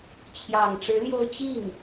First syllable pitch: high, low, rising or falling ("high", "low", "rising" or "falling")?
low